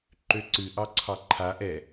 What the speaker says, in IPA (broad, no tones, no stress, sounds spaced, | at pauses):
ǃ ø ǀ ɨ ʔ ɑ ǀʰ ɑ ǃʰ a ʔ ɛ